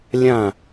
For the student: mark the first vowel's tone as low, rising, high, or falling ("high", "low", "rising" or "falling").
falling